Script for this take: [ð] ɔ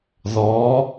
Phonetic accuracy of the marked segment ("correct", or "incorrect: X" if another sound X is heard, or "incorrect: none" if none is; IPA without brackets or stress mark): correct